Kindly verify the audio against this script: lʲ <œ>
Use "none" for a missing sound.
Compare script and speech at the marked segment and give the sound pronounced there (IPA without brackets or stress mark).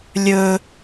ɵ